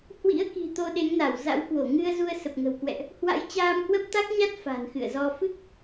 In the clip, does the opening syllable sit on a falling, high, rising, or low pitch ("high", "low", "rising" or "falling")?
rising